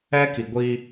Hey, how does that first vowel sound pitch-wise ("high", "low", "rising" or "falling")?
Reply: high